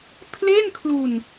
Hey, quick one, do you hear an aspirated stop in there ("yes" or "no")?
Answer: yes